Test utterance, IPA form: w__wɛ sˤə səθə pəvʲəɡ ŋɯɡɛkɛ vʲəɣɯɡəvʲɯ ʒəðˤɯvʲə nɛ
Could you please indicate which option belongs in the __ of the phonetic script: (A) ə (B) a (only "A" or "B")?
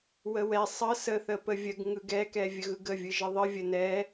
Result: A